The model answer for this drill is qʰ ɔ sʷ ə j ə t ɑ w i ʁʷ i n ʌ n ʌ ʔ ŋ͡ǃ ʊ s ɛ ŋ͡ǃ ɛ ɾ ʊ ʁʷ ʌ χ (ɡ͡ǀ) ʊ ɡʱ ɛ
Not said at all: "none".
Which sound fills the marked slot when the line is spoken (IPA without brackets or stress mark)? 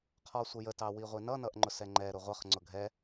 ŋ͡ǀ